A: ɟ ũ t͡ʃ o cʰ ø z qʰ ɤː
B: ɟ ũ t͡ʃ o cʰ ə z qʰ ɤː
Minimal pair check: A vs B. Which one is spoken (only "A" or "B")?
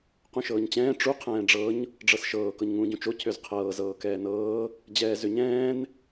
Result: A